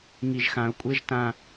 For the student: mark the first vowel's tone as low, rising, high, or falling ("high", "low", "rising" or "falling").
low